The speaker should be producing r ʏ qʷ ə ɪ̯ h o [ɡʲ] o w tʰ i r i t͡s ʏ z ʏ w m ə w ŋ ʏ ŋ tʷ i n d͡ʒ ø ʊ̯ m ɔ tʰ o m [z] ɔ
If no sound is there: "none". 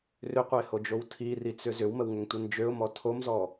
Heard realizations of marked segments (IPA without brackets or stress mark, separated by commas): d͡ʒ, z